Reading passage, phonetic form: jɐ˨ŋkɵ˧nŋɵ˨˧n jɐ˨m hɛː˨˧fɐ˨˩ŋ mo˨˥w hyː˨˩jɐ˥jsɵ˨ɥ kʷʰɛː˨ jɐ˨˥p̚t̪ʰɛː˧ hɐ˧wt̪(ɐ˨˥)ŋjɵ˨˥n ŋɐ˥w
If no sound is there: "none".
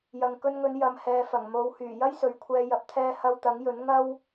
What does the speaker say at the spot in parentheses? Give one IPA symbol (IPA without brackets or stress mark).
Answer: ɐ˨˥